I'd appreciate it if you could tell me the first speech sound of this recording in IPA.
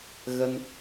ɣ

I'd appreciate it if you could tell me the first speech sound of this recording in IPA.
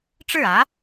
ʈ͡ʂ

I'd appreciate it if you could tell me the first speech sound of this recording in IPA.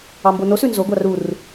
ɑ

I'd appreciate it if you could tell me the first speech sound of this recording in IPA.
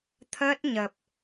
t̪ʰ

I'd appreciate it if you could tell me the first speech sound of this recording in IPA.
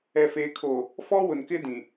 ɛ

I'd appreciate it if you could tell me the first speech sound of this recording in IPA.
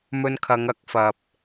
m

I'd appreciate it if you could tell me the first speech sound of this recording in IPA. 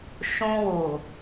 ʃ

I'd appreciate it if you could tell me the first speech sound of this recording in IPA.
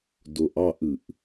d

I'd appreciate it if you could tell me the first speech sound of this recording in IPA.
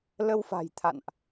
l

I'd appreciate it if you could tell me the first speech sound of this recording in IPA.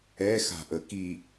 ɛ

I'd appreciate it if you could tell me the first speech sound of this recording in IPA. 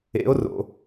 ḛ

